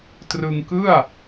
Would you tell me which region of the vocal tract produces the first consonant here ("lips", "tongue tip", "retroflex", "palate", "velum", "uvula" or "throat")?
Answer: tongue tip